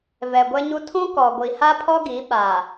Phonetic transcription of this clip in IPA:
v ɛ˨ ɡʷ ɛ˦ ɲ u˦ tʰ ũ˦ k ɔ˨ ɡʷ i˨ h a˦ pʰ ɔ˦ ɡ i˨˦ ɓ a˨

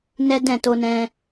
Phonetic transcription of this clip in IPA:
n ɛ˦ d ɛ̃˦˨ t o˧ n ɛ̃˧

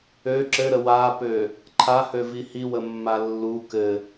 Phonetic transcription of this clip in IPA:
ø ǁ ɘ ɾ ə w a p ø | ǃʰ a h ø v i h i w ə mː a lː u k ɘ

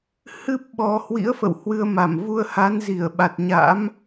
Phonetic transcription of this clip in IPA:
h ɨ˦˥ p̚ ɓ ɔ˨˩ h w ḭ˧˥ ə̯ f ə̰˧˨ w h w ɨ˧ ə̯ m a˧˩ m v u˧ ə̯ h a˨˦ n z i˧˩ ə̯ ɓ a˨˩ t̚ ɲ a̰˧˥ m

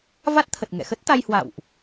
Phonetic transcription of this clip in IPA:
v a˦˥ t̚ t̪ʰ ə˨˩ t̚ ŋ ɛ̰˧˨ x ə˦˥ t̚ t̪ a˧ j h w a̰˧˨ w ʔ

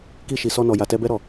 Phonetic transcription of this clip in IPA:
k i˧ ʃ i˨ s ɔ˧ n ɔ˨ j a˨ t ɛ˧ b ɛ˦ ɾ ɔ˦˨

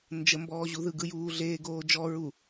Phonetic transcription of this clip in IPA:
n d͡ʒ ə m b ɔː ʑ u ð ɯ ɡ ɯ j uː ɮ eː ɡ oː d͡ʒ ɔ ɹ u

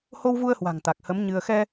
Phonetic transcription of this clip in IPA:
h o˧ w v u˧ ə̯ h w a̤˨˩ ŋ t̪ a˨˩ k̚ h ə˨˦ m ɲ ɨ˧ ə̯ x ɛ˧

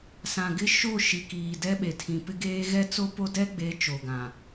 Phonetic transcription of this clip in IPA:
s ã˨ ɡ ɪ˦ ʃ o˦˨ ʃ i˨ k iː˨ d ɛ˦ ɓ e˨ tʰ ĩ˨ p ɪ˦ ɡ eː˦ ɣ ɛ˦ t͡s o˦ p o˦ d ɛ˦ ɡ͡b e˨˦ t͡ʃ o˨ ɡ ã˨

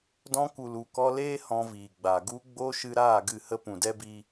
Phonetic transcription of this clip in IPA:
d ɔ̃˧ k u˨ l u˨ k ɔ˧ l eː˦ h ɔ̃˧ v iː˨ ɡ͡b a˨ ɡ u˧ ɡ͡b o˧ ʃ ɨ˧ ɾ aː˦˨ ɡ ɨ˦˨ h ə˦ p ũ˨ d ɛ˦ b i˧

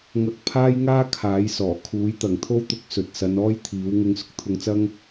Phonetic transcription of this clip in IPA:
ŋ ɐ˧ k̚ pʰ aː˥ j ŋ aː˥ kʰ aː˨˥ j s ɔː˨˩ kʰ uː˨˥ j t̪ ɐ˨ ŋ t̪ʰ o˥ w t̪ ʊ˧ k̚ s ɵ˨ t̚ s ɐ˨˧ n ɔː˥ j t̪ʰ iː˨˥ w ŋ ʊ˧ ŋ s ʊ˥ k̚ t̪ʰ ʊ˧ ŋ t͡s ɐ˥ ŋ

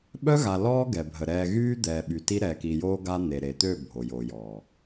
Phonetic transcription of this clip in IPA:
ɓ œ˦ ɣ a˨ l ɔː˦ ɡ ɛ˨ bʱ ə˨ ɾ ɛː˨ ɣ yː˦ d̪ ɛː˨ ɓ y˨ t i˦ ɾ ɛː˨ k i˨ j oː˦ ɡ a˦ n̪ e˨ ɾ e˨ t̪ ø˦˨ bʱ o˨ j o˨ j ɔ˨

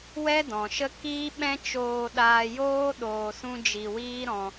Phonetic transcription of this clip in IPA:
w ɛ˦ d ɔ̃˨ ʃ ə˦ k iː˦ ɓ ɛ̃˦ t͡ʃ oː˧ ɗ aː˧ j oː˦ ɗ oː˧ s ũ˦ d͡ʒ i˧ w iː˦ ɾ ɔ̃˧

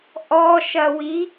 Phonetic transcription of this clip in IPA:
ʔ ɔ ʃ ɐ w i

